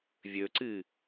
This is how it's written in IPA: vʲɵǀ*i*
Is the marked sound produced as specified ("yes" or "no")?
no